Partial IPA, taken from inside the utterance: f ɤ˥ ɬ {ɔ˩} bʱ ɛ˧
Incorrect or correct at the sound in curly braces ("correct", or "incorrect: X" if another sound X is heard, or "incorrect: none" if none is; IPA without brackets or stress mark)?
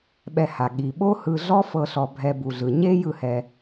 incorrect: ɔ˧